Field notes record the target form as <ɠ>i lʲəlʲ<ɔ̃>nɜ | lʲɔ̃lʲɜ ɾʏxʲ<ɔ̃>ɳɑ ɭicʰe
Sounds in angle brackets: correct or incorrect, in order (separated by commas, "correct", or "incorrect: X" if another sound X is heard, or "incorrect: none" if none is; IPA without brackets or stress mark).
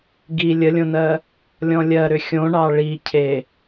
incorrect: ɡ, incorrect: õ, incorrect: õ